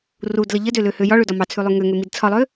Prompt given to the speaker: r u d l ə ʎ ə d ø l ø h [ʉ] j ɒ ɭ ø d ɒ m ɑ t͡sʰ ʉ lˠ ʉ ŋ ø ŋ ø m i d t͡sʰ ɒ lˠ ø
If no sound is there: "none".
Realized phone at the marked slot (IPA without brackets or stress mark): ø